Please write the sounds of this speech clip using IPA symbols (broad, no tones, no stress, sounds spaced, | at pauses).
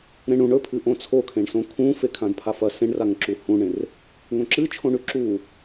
ɾ ẽ ɳ ũ ɳ ɵ pʰ ɨ ʔ õ t͡sʰ o kʰ ẽ ɳ s õ kʰ ũ f e kʰ ã d pʰ a f ɐ s ẽ ɳ r a ŋ ǁ u h ũ ɳ ẽ r | ŋ õ ǁ ɨ t͡ʃʰ õ ɳ ʉ ǁ u